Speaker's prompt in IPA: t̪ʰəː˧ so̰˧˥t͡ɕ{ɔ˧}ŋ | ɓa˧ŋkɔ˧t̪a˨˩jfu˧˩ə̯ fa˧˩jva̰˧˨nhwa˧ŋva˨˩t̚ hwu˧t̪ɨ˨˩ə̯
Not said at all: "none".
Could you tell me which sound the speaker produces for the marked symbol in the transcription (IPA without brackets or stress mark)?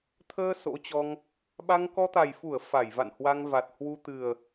ɔ˧